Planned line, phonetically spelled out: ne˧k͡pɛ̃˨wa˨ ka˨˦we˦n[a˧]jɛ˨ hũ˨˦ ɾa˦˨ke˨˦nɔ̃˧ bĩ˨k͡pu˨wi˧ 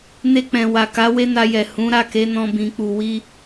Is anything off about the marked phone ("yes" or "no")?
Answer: no